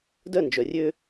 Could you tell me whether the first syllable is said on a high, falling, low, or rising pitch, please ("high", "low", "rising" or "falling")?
falling